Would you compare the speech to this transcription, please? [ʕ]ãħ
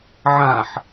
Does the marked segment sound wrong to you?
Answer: no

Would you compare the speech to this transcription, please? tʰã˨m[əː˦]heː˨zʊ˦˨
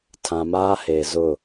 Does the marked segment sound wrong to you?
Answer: yes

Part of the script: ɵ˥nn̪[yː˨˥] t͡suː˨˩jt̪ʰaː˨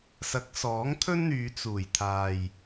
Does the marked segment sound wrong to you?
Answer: yes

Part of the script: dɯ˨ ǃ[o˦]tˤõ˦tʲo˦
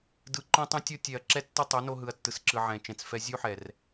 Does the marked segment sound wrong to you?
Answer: yes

